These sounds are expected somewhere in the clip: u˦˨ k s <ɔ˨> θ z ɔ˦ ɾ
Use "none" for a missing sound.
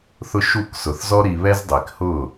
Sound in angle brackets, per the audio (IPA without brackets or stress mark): ʊ˨